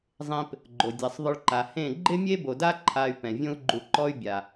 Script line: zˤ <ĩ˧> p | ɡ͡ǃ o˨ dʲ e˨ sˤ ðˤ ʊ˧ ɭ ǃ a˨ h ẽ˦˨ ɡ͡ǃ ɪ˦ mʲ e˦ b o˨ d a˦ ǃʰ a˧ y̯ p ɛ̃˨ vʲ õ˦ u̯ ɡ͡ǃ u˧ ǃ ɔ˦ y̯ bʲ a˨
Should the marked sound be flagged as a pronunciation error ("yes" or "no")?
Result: yes